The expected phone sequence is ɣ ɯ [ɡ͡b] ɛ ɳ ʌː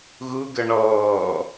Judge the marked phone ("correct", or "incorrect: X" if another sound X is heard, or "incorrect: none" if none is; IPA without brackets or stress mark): incorrect: ɡ